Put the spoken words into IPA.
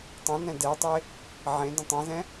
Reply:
tˤ ə̃ n ɛ̃ d ɛ tˤ e | ʕ ẽ d ə̃ tˤ ɛ̃ z ɛ̃

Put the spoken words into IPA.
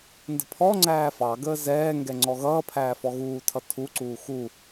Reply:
n d ə̤ pʰ ɔ ŋ͡ǀ æː f ɑ ɡ əː z ɛː ŋ ɡ ɛ ŋ͡ǀ ɔ ɣ ʌː pʰ æː f ɔ ɣ uː tʰ ʌ tʰ u ǀ uː x u

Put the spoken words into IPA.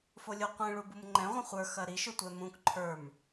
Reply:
f o lʲ u qʷ ĩ ɭ u b u m ŋ͡ǃ ɛ̃ ʁʷ ɐ̃ χʷ ə˞ x ɐ ɾ i ʃ ɵ tʷ ɛ m ũ k ǃʰ ə˞ m

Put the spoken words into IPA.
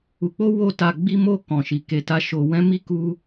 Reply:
u˧ k͡p o˦ w o˦ t a˧ ɡ͡b i˦ m o˦˨ k ɔ̃˨ ʃ i˨ k e˨ t a˧ ʃ o˧ w ɛ̃˦ m i˦ k u˦

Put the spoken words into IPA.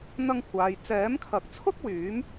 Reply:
n̪ ɐ˧ ŋ kʷ aː˨ j t͡s ɛː˨˥ m kʰ ɐ˨˥ k̚ t͡sʰ ʊ˥ k̚ w yː˨˥ m

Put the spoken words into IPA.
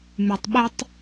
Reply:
m y tˤ ɓ ɛ tˤ

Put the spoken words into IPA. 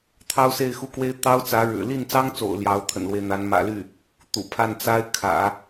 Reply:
t̪ʰ ɑ˥ ʊ̯ s e˥˧ ɪ̯ x u˥˩ k w e˥ ɪ̯ t̪ ɑ˥ ʊ̯ t͡s ä˧˥ ɻ ɻ̩˨˩ l i˥˩ n t͡s ɑ˥ ŋ t͡s o̰˨˩ ʊ̯ l j ɑ˧˥ ʊ̯ t̪ʰ ə̰˨˩ n l w e˦ ɪ̯ n̪ a˧˥ n m ä̰˨˩ l y˥˩ | t̪ ṵ˨˩ pʰ a˥˩ n t͡s a˥ ɪ̯ kʰ ä̰˨˩˦

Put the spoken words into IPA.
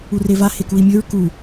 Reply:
u r e v a h e k u i̯ mʲ ɵ ɹ k u

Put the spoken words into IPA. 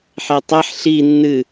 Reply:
ħ e tˤ ɛ ħ ɬ i nː ɨ

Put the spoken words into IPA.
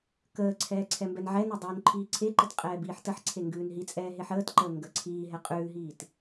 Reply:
k əː ǀʰ ɛː ǀʰ ɛ m b ɛ n ʕ ɛ n ɛ dˤ ʉː n ǃʰ iː ǀʰ e ǃ ə t qʼ ɛː b iː ħ t ə ħ ǀʰ e ŋ ɡ ʉː n ɦ i t͡sʼ ɛː ɦ e ħ əː t ǃ əː ŋ ɡ ə ǀʰ iː ɦ ɛ qʼ ʉː ɦ iː t

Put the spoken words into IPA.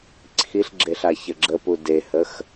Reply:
ǀʰ i ɬ ɡ͡ǁ e ɬ a ç ə ɡ͡ǁ ə p u d e h ə x

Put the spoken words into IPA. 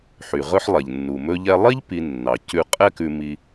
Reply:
ħ y˩ ʁ ɵ˥ ħ lˠ ɛ˩ ʎ nː u˩ m ɵ˧ ʎ ɛ˧ lˠ i˥ ʎ p i˧ nː ɑ˩ c ʉ˧ qʼ ɛ˥ k ʉ˧ m i˧

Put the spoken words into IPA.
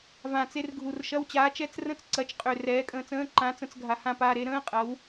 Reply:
v ã˨˩ t͡s e˧ r ɡʱ u˨˩ r ʃ ɐ˧˥˧ w t͡ɕ aː˨˥ t͡ʃ ɛ˧˥˧ t͡s r ə̃˥˩ t͡s ǀ ɐ˨˥ t͡ʃ qʼ ø˨˩ r ɛː˨˥ kʼ ə̃ː˧ t͡s ə̃ː˧˥˧ ǃ ã˨˥ t͡s ə̃˧ t͡s ɡʱ a˨˩ h ã˥˩ p aː˧ ɾ e˨˥ ɾ ə̃ː˧˥˧ qʼ ɐ˨˥ w

